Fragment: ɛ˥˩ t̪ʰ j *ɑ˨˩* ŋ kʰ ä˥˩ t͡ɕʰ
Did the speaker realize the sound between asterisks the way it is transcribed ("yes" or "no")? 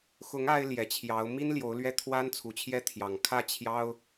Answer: yes